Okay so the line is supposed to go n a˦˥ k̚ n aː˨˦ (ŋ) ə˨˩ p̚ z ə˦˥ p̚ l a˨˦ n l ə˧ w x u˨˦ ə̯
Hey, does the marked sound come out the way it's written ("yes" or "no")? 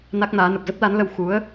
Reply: no